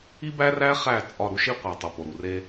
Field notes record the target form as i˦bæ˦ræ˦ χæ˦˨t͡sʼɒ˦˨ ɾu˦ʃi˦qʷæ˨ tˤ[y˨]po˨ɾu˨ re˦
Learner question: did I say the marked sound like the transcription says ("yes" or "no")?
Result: no